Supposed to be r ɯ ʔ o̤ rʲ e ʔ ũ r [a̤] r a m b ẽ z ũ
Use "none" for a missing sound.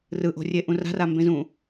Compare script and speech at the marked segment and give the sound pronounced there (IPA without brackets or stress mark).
a̤